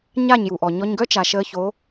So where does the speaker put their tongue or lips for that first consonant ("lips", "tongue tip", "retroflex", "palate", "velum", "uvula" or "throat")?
palate